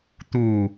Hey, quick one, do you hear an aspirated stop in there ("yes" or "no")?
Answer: no